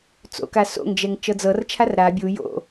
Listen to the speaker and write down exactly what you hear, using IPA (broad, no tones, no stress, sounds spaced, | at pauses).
t͡s o̰ k a s o̰ ŋ d͡ʒ ɛ ŋ t͡ʃ ɤ d͡z ɤ r t͡ʃʰ a r ɾ a bʲ u j o̰